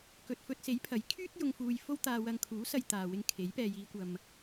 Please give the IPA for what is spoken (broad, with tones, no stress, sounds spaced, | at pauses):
k ɵ˨ t̚ f ɵ˧ t̚ s e˨˥ j pʰ ɐ˨˥ j kʰ yː˥ t̚ j ʊ˧ ŋ f uː˧ j f o˥ w t̪ aː˧ w ɐ˧ ŋ kʰ uː˨˥ s ɐ˧ j t̪ aː˨ w ɪ˧ ŋ kʰ e˨˥ j p ɛː˨ j iː˨˧ kʷ ɐ˨ m